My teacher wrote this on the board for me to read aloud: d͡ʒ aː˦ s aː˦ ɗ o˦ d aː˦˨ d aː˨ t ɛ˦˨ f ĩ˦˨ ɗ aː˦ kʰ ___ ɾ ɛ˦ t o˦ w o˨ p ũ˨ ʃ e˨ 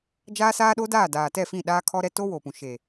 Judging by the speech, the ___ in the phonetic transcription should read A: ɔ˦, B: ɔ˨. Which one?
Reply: A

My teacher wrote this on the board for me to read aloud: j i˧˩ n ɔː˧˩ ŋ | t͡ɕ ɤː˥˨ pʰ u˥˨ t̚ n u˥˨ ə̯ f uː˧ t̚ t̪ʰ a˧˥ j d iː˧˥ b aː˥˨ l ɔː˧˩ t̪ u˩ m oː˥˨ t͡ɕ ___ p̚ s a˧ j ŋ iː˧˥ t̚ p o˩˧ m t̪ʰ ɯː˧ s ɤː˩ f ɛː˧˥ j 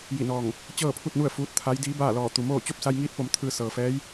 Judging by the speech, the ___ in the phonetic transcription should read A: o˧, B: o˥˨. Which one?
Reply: B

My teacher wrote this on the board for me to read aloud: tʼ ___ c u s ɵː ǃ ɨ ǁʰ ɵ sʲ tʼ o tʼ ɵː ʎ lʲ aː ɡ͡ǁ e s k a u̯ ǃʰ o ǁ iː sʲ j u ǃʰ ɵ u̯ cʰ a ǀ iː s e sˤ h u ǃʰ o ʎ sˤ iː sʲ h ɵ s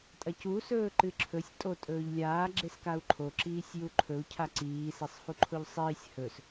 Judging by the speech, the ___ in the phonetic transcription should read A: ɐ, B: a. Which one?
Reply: A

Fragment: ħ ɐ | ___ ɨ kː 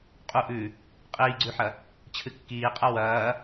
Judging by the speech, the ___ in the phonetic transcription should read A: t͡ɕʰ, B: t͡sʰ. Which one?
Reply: A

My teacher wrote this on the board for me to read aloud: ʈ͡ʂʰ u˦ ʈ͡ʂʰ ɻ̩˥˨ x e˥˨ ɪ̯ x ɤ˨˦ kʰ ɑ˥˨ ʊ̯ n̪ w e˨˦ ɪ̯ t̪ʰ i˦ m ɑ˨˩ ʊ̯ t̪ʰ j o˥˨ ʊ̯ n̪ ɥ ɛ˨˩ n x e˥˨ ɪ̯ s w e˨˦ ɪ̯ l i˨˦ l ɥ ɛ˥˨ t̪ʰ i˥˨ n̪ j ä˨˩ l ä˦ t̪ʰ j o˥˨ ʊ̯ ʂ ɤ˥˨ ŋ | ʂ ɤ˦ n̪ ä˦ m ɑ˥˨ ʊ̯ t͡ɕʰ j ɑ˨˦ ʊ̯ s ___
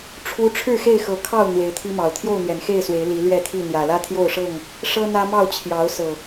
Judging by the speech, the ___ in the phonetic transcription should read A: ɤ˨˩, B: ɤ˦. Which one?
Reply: A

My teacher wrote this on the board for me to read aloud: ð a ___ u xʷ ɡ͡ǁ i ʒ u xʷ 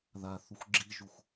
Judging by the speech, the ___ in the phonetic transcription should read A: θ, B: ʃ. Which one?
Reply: A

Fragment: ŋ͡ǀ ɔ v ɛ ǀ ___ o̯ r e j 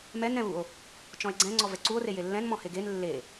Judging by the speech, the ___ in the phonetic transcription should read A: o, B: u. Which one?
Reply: B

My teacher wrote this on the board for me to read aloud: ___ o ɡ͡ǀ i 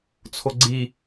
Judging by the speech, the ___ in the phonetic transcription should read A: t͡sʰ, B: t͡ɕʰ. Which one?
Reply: A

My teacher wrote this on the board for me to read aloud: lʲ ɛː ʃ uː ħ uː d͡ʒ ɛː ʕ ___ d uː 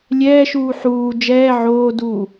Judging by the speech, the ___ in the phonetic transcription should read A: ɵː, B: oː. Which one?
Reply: B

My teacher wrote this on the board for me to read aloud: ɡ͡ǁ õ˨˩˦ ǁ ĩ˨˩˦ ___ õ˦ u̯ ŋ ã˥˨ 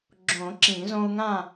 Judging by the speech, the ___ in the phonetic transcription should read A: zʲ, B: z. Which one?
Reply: B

